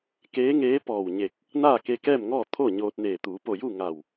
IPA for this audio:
k eː˧˥ ŋ eː˧˥ p ɔː˧˩ w ɲ e˧˩ k̚ | n aː˥˨ k e˧ k ɛː˥˨ m ŋ ɔː˥˨ t̪ʰ o˥˨ ɲ oː˧ t̚ n eː˧˩ t̪ uː˩˧ p o˧˩ j u˥˨ ŋ a˧˩ w

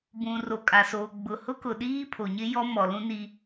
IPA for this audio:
b ũ˨ r o˨ kʼ a˨ s oː˨ ɡ͡b ʊ˨ h ʊ˦ k ʊ˨ ɗ iː˦ pʰ o˨ ɲ ɪ˦ j ɔ˦ m ɔ˨ l ũ˦ n i˦

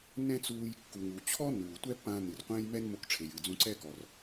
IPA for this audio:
n ɛ̃˥ t͡s uː˧ j kː u˩ ŋ u˩ t͡ɕʰ ɔ˥ n uː˩ tʷ ɛ˥ pː ãː˧ n ɨ˩ r qʷ ɛ̃ː˥ j m ɛ˥ n m o˧ k ʈ͡ʂʰ e˩ j ɨː˩ d͡z ũ˧ ǀ ɛ˥ k ɔ˩ r

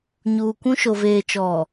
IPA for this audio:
ɲ uː˨ kʷ ũ˦ ʃ o˨ v eː˨ t͡ʃ ɔ˨

